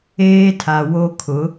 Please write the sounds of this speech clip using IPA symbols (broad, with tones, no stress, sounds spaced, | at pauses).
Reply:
eː˦ tʰ a˨ w o˦ kʰ ʊ˨˦